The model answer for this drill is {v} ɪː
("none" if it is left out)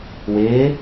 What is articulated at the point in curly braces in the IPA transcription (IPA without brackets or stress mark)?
w